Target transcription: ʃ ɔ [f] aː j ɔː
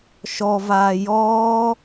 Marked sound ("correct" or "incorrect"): incorrect